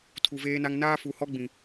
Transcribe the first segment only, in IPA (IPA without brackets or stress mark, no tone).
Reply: tʰ